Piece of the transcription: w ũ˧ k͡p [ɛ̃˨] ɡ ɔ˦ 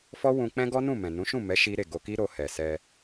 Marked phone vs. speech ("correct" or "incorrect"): incorrect